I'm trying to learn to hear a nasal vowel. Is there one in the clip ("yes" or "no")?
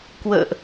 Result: no